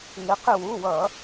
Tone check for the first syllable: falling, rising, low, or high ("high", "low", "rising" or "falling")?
rising